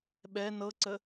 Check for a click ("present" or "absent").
present